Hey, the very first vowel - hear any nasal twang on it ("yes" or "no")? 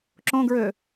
yes